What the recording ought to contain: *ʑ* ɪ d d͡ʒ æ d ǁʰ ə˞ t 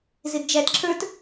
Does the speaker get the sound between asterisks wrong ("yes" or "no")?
yes